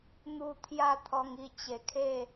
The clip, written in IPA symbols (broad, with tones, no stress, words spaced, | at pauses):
n̪u˧ t̪ʰja˥˧t̪ʰɔ˧ŋi˧ t͡ɕe˨˩kʰe˥˧